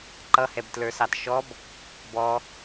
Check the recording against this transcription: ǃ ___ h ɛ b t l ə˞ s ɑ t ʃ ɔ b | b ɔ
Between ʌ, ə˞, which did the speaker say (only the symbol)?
ʌ